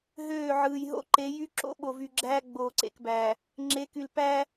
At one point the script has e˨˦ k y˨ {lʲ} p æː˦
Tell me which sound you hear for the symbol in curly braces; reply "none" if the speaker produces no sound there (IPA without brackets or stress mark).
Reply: l